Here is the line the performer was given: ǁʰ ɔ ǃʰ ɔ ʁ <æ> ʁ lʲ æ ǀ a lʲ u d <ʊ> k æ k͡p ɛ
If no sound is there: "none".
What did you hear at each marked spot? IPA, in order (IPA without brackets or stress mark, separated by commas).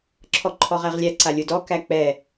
æ, ɔ